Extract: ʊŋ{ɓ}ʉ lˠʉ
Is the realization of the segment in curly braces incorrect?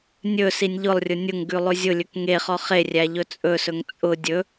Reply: yes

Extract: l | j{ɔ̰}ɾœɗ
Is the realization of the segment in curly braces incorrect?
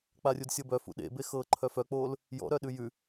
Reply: no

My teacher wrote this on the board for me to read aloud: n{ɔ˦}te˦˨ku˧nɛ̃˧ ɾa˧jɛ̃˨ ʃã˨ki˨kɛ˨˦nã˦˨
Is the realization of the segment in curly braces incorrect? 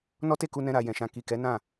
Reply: no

